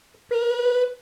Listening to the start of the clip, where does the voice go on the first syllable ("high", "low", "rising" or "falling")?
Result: high